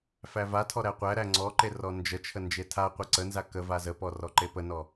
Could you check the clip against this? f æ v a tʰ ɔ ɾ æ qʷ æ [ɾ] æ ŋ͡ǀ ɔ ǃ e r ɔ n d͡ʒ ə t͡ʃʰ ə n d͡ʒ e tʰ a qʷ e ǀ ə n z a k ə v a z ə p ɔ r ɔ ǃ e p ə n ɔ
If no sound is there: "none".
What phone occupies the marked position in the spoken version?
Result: ɾ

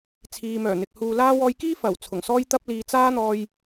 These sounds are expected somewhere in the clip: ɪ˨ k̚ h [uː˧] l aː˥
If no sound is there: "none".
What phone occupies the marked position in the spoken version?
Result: uː˧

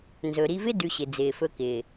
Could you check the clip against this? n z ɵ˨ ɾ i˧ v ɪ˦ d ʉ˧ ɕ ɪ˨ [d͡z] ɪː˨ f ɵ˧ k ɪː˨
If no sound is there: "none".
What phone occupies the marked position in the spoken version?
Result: d͡z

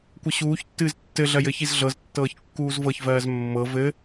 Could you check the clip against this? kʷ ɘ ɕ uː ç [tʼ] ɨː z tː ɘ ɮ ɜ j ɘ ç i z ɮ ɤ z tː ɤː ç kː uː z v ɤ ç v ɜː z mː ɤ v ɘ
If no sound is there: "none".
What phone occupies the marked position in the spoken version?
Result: tː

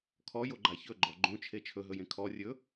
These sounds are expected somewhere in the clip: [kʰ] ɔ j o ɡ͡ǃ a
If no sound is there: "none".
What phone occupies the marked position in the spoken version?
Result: kʰ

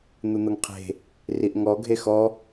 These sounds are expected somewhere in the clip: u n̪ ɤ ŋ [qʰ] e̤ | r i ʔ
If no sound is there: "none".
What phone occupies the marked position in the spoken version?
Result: qʰ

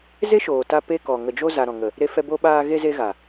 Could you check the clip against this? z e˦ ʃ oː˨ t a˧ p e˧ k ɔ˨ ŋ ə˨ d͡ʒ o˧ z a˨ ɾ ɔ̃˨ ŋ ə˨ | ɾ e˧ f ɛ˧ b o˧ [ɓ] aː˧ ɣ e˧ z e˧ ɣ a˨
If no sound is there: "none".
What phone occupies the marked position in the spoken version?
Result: ɓ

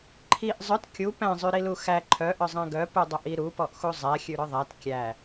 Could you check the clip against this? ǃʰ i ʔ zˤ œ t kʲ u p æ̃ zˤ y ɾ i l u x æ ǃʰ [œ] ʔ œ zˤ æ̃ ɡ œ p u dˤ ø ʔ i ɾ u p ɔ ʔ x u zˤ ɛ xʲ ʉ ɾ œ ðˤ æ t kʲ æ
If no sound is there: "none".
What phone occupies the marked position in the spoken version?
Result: œ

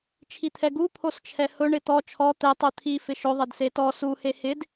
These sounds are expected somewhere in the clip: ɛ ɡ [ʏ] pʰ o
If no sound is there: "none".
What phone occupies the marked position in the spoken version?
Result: u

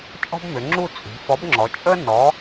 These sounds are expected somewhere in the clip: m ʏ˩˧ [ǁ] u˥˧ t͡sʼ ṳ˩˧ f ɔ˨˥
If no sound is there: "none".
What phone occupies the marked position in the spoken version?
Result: ŋ͡ǁ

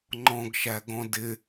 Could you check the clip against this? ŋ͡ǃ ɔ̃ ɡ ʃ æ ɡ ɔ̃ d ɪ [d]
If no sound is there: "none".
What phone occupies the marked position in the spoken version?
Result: none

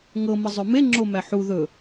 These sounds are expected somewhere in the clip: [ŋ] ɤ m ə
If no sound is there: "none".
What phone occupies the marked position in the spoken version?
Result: ŋ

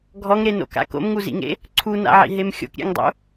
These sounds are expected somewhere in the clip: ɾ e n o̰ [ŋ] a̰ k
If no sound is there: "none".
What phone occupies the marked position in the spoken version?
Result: k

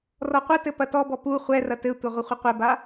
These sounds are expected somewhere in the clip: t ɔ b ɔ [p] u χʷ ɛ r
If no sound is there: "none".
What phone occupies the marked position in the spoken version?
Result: p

